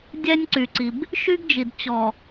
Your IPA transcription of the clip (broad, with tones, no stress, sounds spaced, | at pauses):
dʲ ɛ˦ nʲ ǀ y˨ ǀ i˨ b | ʃ y˦ ɡ d͡ʒ i˨ d t͡ɕ ɔ˨